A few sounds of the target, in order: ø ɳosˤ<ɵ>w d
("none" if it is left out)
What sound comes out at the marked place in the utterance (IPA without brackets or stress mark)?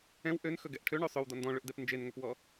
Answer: ɵ